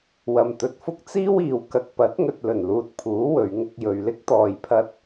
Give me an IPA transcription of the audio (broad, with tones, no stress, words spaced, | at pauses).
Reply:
wɐ˨mt̪ɵ˨t̚fʊ˥k̚ t͡siː˥wiː˨w kɐ˨k̚pɐ˨˥t̚ŋɵ˨t̚ lɵ˨˩nluː˨t̚pʰuː˨˥ wɵ˨˧ɥŋʊ˧k̚jɵ˨ɥ lɪ˥k̚t̪ɔː˨jpʰɐ˧t̚